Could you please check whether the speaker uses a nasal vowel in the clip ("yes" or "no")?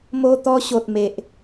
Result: no